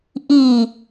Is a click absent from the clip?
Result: yes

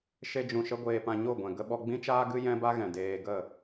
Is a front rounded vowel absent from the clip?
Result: yes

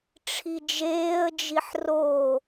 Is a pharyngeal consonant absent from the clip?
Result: no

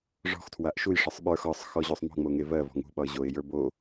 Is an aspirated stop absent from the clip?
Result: no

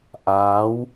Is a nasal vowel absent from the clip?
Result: yes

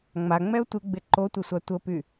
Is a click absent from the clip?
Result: no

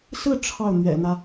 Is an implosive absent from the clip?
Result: yes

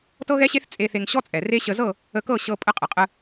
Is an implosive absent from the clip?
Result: yes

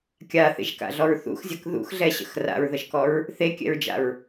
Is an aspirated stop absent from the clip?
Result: yes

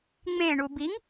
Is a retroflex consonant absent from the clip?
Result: no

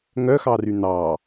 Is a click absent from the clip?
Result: yes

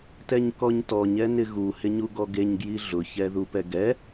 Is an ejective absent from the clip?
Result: yes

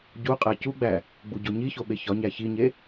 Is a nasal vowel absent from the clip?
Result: yes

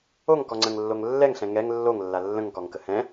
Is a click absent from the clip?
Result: no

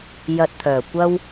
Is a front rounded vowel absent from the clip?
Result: no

